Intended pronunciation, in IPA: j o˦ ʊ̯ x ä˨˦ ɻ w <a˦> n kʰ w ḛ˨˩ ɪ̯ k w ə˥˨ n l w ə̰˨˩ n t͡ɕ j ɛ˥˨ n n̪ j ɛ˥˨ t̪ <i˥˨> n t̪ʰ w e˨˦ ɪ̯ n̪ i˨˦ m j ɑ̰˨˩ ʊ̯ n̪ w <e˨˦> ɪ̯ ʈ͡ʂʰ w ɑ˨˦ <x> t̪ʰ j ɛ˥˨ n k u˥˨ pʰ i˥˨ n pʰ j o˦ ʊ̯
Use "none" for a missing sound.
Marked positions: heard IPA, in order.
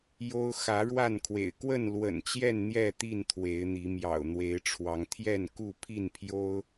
a˥˨, i˥˨, e˨˦, ŋ

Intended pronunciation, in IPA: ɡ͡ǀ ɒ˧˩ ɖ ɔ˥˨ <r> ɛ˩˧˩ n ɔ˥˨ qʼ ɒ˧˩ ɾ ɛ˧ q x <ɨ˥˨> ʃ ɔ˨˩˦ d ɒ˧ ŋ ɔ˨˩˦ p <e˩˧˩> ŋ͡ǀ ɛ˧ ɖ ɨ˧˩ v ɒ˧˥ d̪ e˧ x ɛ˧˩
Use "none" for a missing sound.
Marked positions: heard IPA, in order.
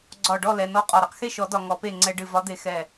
l, e˥˨, e˥˨

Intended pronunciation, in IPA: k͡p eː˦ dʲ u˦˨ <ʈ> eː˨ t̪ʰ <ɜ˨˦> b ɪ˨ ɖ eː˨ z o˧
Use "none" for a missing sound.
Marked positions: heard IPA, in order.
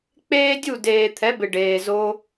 d, ɛ˨˦

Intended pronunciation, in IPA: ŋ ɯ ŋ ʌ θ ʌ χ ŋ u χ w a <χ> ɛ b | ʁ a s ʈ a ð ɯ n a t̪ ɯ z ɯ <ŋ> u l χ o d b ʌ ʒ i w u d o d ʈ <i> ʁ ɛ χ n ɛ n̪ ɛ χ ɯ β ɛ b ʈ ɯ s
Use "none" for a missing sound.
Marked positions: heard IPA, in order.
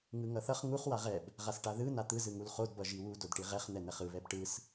ʁ, ŋ, i

